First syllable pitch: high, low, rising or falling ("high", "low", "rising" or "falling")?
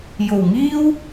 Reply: low